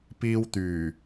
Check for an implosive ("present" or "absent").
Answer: absent